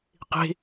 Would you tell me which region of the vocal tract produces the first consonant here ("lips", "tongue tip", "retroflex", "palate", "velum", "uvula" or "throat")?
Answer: uvula